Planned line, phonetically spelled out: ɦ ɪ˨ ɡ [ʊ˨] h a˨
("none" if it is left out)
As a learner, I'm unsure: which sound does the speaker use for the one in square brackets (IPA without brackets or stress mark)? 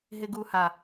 u˨